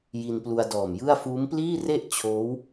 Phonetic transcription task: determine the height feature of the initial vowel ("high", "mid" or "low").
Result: high